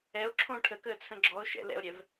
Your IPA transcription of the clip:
ɛ o̯ ǁʰ õ ʈʰ ə k əː t͡sʰ ə̃ ɡ͡ǁ ɔ o̯ ʃ ɛ̰ l ɛ̰ o̯ ɾʲ ɛ v

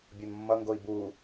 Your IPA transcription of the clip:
bʲ o n mː ʌ ŋ ɡ o i̯ b u

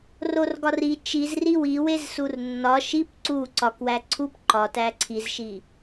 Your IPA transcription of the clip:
r o r ɡ ɒ r i t͡ʃ i z r i w i w e z s u r nː ɒ ʃ i p ǀ u ǀ ɒ k w æ ǀʰ u p ǃ ɒ t æ ǀʰ i z ʃ i

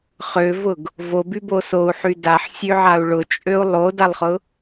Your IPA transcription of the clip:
χ ø v ʊ ɡ | v o b y b o s o u̯ ħ y d a ħ sʲ ø ʕ a u̯ ɭ ʊ t͡ʃʼ ø u̯ lˠ o d a lˠ χ ʊ

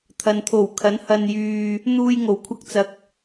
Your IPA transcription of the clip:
t̪ʰ ɐ˨ n t̪ʰ o˨˩ w kʰ ɐ˨˥ n h ɐ˧ n j yː˧ | n̪ uː˧ j ŋ o˨˩ w kʷʰ ɐ˧ k̚ t͡s ɐ˨ k̚

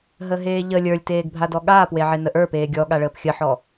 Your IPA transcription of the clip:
ɦ ə ɦ eː ʎ ə lʲ ə˞ lʲ t eː ɡ bʱ a d ɔ ɠ aː p w e ʕ e n ə ʔ ə˞ p eː ɡʲ ɔ ɠ a ɭ əː p xʲ ə ħ ɔ

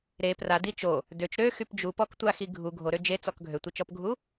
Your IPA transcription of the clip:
ɾ e p r a d i t͡ʃ o | d ø t͡ʃ ɾ ø x y p d͡ʒ u p ɔ k tʷ a x i ɡʱ u ɡʱ o ɾ ø d͡ʒ e t͡s ɔ k ɡʱ ø tʷ i t͡ʃ ɔ p ɡʱ u

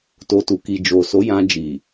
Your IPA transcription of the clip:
t o˧ t u˨ k i˨ d͡ʒ o˨ s o˨˦ j ã˧ d͡ʒ i˨

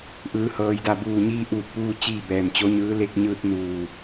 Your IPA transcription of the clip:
ʔ ɯː˩˧ h ɤː˩ j d a˧˩ b uː˧˩ ɲ iː˧ ʔ uː˧˩ t̚ p uː˧ t͡ɕ iː˥˨ b ɛː˧˩ m t͡ɕ o˧˥ ɲ ɯː˧˥ l e˧ k̚ ɲ ɯː˧ t̚ n uː˧˩

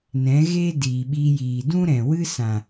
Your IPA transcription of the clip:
n ɛ̃˨˦ ɣ eː˦ d iː˨ ɓ iː˧ j iː˨ d ũ˦ ɾ ɛ̃˨ w ɨ˦ s ã˨

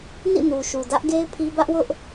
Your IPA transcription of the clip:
n ḭ˦˨ n u˨ ʃ u˨ d ä˦ ʔ ɡ e˦ ɪ̯ pʰ i˦ b ä˦ ʔ w ʊ˦ ʔ

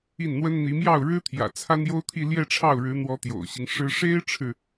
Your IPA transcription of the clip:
i˥˩ n n̪ w ə˥ n n̪ i˧˥ m j ɑ˥˩ ʊ̯ ɻ ɻ̩˥ t̪ʰ j ä̰˨˩ t͡sʰ a˥ n j o˥ ʊ̯ t̪ʰ i˥˧ l j ɛ˥˧ ʈ͡ʂʰ ɑ˥˩ ʊ̯ ɻ ɻ̩˧˥ n̪ w ɔ˧˥ t̪ j o̰˨˩ ʊ̯ ɕ i˦ ŋ ʂ ɻ̩˥ ʂ e˥ ɪ̯ ʈ͡ʂʰ ɻ̩˨

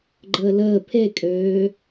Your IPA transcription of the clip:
ɡ͡ǃ əː l əː pʰ e kʼ øː

